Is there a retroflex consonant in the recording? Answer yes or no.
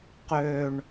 yes